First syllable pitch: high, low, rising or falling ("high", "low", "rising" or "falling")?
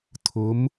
rising